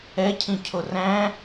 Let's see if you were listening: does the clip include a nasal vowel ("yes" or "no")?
yes